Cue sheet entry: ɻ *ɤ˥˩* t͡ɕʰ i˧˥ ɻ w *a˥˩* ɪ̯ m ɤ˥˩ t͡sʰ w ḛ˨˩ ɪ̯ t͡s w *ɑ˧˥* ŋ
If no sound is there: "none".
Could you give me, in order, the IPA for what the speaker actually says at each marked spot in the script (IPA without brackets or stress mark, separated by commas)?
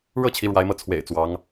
ɤ˥˩, a˧˥, ɑ˧˥